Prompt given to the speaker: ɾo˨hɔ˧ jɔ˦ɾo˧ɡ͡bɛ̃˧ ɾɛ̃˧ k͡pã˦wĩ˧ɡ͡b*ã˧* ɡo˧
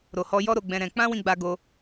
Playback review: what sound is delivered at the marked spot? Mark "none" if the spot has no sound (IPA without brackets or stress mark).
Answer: a˧